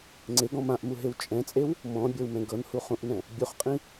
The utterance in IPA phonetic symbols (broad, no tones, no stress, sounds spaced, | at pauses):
ŋ͡ǀ e ɡ ɔ̃ m ã ʔ m u ɦ e w t͡ʃʼ ɛ̃ t͡sʼ e w | m ɔ̃ bʲ ɤ w m ɛ̃ ɡ ɤ n h u χ ũ ʔ n ɛ̃ | bʲ u χ qʼ ĩ